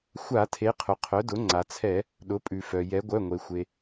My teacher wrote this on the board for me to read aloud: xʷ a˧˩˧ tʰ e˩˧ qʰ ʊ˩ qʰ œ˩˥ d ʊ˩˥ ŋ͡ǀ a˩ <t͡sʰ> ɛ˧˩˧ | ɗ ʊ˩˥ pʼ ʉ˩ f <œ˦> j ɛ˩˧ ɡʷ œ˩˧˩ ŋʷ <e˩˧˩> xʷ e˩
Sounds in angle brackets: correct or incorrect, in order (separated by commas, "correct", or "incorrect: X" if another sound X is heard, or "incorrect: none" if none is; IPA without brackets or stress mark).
correct, incorrect: œ˩, incorrect: e˩